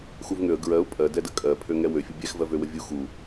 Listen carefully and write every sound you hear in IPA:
x u v ŋ ø ə̯ ɡ ɹ ɜ ʊ̯ pʼ ɜ d ɛ d ə kʼ ɜ pʰ ø ŋ ɛ w ø fʲ ə bʲ ɛ x v ɜ v ø w ə vʲ u x u

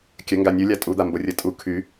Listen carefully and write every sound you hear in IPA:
kʲ ə ŋ ɡ a nʲ u lʲ a tʼ u d̪ a m b o rʲ ə tʼ u kʰ y

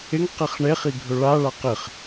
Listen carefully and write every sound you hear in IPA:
ɪ ŋ q e χ ɳ e χ i ɡʱ ɵ ɭ a ɭ a q ɪ χ

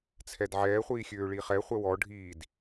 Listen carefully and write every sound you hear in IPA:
t͡sʰ ɛ d ʕ ɛː χʷ iː xʲ øː ɭ i χ ɛ χʷ ɛ w ɔ ɖʱ iː d

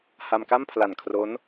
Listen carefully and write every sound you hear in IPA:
h a˧ m k a˥˩ m pʰ l a˨˩ n kʰ r o˦˥ n

